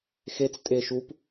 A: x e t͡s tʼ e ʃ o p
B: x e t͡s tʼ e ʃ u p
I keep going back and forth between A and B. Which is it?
B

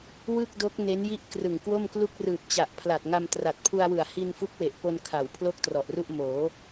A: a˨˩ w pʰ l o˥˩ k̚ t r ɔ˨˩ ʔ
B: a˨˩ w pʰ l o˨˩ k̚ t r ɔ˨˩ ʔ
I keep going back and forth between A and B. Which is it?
A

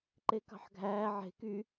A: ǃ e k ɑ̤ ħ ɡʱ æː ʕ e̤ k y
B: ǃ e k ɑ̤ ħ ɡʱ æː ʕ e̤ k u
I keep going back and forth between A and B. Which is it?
A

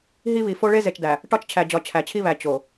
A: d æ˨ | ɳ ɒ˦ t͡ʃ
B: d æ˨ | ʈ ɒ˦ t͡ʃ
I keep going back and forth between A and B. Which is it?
B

